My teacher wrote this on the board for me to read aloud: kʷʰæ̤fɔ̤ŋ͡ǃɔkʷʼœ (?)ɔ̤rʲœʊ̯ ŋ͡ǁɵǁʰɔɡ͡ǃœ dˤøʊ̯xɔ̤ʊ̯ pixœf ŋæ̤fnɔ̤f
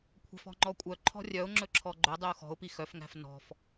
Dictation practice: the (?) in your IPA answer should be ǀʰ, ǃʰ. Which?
ǃʰ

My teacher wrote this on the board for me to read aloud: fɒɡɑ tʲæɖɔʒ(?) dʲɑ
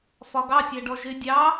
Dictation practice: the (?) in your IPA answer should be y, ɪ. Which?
ɪ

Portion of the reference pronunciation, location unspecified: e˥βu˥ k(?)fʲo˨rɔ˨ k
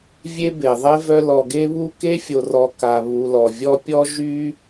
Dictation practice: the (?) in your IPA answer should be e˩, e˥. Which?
e˥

